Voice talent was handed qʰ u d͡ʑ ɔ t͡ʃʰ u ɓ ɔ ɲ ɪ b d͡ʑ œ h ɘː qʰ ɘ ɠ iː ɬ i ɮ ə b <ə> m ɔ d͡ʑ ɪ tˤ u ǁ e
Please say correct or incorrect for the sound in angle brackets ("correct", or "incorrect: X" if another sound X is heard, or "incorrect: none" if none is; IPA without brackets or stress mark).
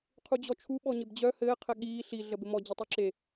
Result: incorrect: ɪ